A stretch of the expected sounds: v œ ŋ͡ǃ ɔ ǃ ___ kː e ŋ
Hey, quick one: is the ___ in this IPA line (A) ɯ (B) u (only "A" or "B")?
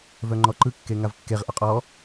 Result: A